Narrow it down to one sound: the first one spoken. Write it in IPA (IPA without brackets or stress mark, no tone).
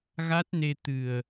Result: ɣ